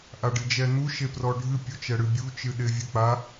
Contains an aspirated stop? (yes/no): no